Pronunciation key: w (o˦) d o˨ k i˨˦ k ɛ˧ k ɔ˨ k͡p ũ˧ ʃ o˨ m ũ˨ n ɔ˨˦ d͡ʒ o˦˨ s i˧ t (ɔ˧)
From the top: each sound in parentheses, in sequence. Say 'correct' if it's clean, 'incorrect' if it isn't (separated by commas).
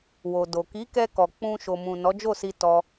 incorrect, correct